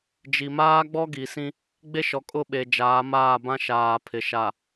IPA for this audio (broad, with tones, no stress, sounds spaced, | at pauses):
d͡ʒ i˨ m aː˦ ɡ͡b ɔ˦ ɡ i˨ s ĩ˦ | ɡ͡b e˦ ʃ ɔ˨ kʼ ʊ˦˨ ɓ e˨ d͡ʒ aː˨˦ m aː˦˨ b ã˦ ʃ aː˨ pʰ ɪ˨ ʃ a˨